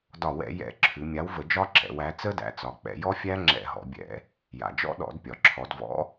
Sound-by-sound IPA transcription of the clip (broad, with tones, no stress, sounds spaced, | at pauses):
d ɒ˧˩˧ w ɛ̰˧˩˧ j ɛ̰˧˩˧ ǁʰ ʉ˩˧ mʲ a˨˥ w v ə˧˩˧ d͡ʒ ɒ˦˥ ǁ ɛ̰˩˧ w æ˨˥ t͡s ə˦˥ d æ̰˩˧ t͡s ɒ˩˧ k͡p ɛ̰˩˧ j ɔ˦˥ fʲ æ˦˥ ŋ͡ǁ ɛ̰˧˩˧ ɦ ɔ̰˩˧ bʲ ɛ̰˧˩˧ | j a̰˩ d͡ʒ ɔ̰˦˥ ɗ ɔ̰˧˩˧ d pʲ ɒ˩ ǁʰ ɔ˩˧ d v ɔ̰˨˥